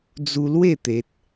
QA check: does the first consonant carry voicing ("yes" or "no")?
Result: yes